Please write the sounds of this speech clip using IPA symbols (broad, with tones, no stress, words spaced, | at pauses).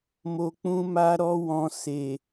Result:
mo˧k͡pũ˦ma˦ ɾɔ˦wɔ̃˧ se˨